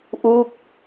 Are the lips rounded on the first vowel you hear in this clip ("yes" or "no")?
yes